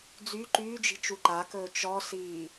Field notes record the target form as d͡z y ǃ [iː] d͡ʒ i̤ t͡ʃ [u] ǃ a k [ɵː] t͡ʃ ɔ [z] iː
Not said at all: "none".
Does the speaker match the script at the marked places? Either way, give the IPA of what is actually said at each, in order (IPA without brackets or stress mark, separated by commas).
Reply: yː, u, ɵː, s